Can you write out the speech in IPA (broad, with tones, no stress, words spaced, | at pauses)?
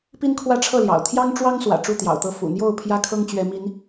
pi˦nkʰwä˥˨ʈ͡ʂʰɤ˥˨ljɑ̰˨˩ʊ̯ t̪ʰjɑ˦ŋʈ͡ʂwɑ˦ŋ swä̰˨˩ʈ͡ʂu˥˨t̪jɑ̰˨˩ʊ̯t̪ɤ˥˨ fṵ˨˩n̪jo˥˨ʊ̯ pʰjä˦kʰɤ˦ŋt͡ɕɥɛ˨˦ mi˨˦n